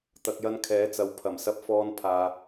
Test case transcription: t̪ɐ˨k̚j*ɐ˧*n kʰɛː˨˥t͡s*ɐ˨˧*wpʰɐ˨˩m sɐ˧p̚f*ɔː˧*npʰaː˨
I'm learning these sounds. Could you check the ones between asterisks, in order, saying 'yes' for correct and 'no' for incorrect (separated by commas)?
yes, yes, yes